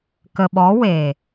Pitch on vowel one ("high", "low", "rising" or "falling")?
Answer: low